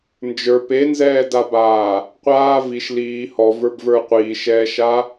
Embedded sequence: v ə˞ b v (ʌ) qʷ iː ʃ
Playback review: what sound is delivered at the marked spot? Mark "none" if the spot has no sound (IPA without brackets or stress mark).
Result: ə˞